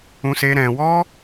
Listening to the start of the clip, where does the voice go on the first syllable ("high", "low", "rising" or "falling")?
high